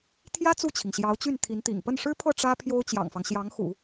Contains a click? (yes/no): no